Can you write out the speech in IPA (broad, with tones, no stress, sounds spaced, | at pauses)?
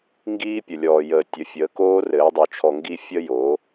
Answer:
ŋ ɡ iː˦ pʲ ə˨ lʲ ɔː˨ j əː˨ tʲ ə˨˦ fʲ əː˨˦ k oː˦ r ɘː˨˦ dˤ o˧ t͡ʃʰ ɔ˧ ŋ ɡ i˦ fʲ ə˦ j o˨˦